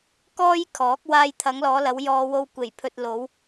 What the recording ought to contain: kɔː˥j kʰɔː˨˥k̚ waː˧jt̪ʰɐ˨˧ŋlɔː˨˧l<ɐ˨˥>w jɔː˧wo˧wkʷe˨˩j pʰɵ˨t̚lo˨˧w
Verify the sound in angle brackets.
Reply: incorrect: ɐ˨˧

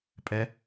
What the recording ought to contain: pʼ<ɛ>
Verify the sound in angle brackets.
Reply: correct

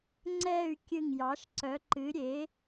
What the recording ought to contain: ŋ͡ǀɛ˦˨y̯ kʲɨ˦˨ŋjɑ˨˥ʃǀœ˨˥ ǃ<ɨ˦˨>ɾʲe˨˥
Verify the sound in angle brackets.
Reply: incorrect: ɨ˨˥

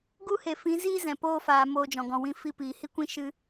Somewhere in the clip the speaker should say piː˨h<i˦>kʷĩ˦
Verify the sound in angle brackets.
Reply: correct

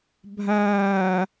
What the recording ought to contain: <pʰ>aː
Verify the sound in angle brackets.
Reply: incorrect: bʱ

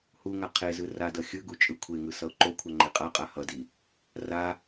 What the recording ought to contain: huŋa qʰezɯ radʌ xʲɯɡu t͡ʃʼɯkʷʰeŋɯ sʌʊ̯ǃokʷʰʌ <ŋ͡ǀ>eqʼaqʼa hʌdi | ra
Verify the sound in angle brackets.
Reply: incorrect: ŋ͡ǃ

